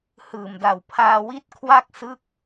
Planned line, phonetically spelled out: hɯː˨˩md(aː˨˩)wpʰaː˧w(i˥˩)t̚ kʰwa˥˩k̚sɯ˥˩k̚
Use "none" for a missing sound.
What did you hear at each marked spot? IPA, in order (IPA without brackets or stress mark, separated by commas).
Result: a˨˩, i˦˥